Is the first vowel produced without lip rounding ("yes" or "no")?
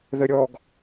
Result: yes